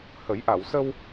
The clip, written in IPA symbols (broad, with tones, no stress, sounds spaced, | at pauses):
h ə˨˩˦ j ʔ a˨˩˨ w s ə˧ w